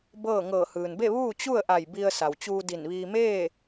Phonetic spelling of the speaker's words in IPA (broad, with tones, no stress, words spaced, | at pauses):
bɤː˥˨ ŋɤː˧˩hɯː˩nbe˥˨ ʋuː˥˨t͡ɕu˥˨ə̯ʔa˧˩j bi˧ə̯sa˩wt͡ɕuː˧di˧˩n ʋiː˧ meː˥˨